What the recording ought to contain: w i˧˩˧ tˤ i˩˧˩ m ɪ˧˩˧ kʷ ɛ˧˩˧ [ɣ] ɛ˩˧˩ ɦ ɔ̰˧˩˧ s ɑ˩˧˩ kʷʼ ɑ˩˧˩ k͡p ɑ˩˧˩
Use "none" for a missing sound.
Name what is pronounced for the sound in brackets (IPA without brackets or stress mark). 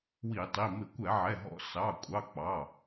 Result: ʕ